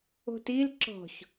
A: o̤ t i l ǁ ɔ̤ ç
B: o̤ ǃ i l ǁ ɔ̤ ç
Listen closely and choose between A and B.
A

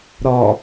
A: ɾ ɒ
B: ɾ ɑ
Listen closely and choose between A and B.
A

